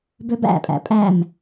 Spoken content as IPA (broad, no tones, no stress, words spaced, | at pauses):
bøbæ̰pʼæ̰ pʼæm